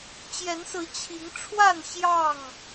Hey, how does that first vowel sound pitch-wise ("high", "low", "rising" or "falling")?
rising